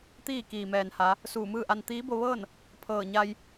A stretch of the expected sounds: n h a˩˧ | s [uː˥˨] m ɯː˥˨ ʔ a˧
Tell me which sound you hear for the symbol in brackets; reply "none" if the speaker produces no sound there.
uː˧˩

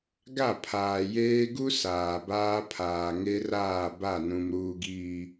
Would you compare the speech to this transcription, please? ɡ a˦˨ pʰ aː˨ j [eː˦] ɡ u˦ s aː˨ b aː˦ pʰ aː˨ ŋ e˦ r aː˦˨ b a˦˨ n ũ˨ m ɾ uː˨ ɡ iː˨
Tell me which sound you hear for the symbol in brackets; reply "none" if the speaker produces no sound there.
eː˦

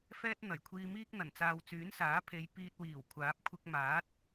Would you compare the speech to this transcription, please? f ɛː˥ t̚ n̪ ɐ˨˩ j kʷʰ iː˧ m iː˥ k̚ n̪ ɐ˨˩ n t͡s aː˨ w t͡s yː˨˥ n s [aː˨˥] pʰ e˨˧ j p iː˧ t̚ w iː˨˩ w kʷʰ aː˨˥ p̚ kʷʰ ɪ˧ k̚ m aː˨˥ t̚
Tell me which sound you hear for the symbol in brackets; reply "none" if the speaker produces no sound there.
aː˨˥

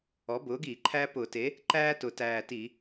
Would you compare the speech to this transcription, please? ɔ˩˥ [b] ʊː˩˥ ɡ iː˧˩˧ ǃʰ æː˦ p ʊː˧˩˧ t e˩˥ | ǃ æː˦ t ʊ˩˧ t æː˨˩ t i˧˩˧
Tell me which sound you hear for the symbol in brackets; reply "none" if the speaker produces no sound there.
b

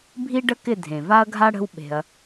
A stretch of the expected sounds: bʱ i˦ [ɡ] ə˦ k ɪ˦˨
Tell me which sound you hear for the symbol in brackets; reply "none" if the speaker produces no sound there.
ɖ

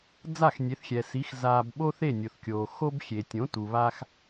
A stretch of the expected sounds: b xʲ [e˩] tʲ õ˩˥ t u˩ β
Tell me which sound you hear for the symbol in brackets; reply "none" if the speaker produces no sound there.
e˩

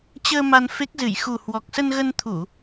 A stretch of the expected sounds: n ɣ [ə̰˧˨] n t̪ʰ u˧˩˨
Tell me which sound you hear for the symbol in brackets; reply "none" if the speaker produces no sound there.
ə˧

